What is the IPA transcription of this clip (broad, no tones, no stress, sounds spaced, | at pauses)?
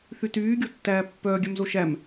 θ y t yː ɡʲ o tː æː pː œː ɡʲ œ m z o ʃ æ m